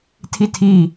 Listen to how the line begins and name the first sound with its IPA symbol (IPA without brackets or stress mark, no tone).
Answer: tʰ